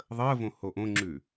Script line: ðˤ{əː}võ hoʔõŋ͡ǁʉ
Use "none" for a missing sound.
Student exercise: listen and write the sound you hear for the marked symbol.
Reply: əː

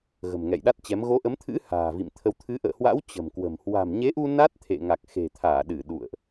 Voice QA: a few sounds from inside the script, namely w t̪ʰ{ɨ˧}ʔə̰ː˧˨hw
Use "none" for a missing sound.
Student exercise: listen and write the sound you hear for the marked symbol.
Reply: ɨ˨˦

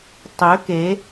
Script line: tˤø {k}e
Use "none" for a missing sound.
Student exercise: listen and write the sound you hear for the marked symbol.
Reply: k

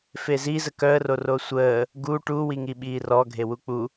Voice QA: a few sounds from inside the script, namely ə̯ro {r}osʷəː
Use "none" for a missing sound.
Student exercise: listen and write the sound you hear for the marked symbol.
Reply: r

